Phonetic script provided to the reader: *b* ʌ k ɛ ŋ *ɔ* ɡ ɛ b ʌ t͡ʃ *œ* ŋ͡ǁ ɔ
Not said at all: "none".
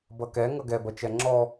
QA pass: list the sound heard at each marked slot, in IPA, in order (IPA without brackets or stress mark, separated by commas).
b, ʌ, ɛ